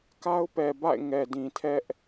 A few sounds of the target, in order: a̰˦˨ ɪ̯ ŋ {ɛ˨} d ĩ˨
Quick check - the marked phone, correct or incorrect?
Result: correct